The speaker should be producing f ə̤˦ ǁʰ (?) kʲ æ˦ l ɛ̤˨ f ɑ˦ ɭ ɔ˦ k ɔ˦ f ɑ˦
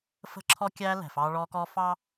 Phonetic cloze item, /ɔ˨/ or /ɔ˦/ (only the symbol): ɔ˦